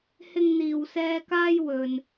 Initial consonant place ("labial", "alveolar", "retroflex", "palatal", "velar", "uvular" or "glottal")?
glottal